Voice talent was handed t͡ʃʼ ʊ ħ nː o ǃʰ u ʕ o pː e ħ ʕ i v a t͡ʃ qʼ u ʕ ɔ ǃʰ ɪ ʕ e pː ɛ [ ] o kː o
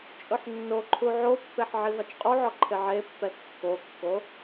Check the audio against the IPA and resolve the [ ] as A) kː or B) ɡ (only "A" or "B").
A